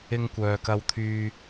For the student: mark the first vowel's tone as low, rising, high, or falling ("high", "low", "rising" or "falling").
high